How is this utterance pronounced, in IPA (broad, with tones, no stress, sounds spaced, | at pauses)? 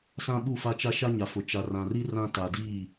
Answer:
s ã˦ ɓ u˦˨ f a˦ t͡ʃ a˦ ʃ a˦ ɲ a˨ f ʊ˨ t͡ʃ a˨ r ã˨ r i˦ r ã˦ t a˨ d i˦˨